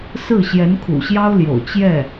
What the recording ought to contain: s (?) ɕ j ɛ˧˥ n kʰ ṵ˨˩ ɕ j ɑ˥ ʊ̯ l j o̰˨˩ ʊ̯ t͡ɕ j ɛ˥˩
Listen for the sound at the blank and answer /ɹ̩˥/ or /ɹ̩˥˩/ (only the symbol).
ɹ̩˥˩